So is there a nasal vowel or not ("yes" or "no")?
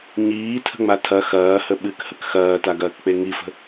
no